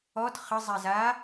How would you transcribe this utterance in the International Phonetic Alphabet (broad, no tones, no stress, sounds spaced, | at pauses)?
ɔ t χ ə zˤ ɛ z aː